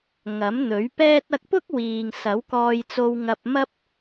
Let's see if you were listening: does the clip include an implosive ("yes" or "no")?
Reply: no